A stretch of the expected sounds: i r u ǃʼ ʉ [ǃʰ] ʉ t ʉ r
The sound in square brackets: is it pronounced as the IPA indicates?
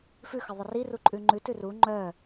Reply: no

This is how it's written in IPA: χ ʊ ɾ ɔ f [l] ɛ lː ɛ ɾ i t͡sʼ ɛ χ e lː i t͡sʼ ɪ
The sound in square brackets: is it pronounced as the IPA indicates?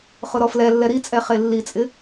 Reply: yes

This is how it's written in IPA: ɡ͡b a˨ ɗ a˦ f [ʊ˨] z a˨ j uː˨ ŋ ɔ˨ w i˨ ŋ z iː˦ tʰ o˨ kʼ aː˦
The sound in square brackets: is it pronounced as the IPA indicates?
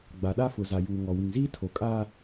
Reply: yes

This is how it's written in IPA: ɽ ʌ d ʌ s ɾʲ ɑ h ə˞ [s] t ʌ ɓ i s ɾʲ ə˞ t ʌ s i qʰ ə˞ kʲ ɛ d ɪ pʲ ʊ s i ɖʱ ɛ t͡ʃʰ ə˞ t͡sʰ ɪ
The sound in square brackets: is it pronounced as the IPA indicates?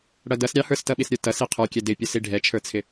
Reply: yes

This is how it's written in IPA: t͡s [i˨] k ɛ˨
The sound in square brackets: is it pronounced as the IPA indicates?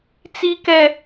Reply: yes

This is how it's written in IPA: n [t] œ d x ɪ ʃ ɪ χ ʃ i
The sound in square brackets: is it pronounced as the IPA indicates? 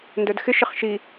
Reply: no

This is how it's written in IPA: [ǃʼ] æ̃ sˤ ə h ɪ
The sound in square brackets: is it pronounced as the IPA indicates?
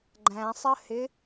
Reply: no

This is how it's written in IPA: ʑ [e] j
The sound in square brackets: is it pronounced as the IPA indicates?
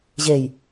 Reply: yes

